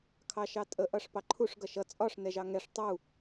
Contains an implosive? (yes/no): no